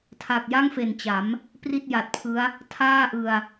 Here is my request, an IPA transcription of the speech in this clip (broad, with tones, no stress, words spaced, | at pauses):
tʰa˨˩k̚ja˥˩ŋfe˨˩nt͡ɕa˩˦m | pri˥˩t̚ja˨˩t̚ pʰɯ˦˥a̯ | tʰaː˥˩ʔɯ˧a̯